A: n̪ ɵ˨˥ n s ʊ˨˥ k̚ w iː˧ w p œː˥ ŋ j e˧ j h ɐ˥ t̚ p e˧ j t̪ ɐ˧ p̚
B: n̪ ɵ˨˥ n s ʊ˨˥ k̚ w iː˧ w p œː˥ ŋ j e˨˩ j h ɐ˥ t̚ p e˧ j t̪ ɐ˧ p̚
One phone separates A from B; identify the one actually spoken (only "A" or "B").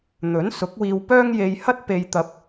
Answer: A